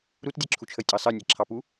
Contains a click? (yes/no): yes